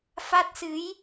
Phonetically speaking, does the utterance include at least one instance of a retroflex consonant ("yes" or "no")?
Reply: no